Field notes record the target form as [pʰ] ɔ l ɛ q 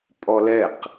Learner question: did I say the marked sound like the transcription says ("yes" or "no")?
no